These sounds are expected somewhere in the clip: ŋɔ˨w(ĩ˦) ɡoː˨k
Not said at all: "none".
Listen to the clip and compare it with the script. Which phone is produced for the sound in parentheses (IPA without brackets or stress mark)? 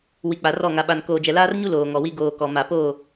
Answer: i˦